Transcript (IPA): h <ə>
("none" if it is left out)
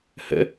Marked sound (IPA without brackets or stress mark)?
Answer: ə̰